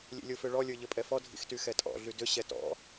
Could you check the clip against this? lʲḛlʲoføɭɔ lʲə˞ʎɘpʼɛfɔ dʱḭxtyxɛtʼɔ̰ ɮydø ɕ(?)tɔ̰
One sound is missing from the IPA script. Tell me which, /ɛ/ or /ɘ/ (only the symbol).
ɛ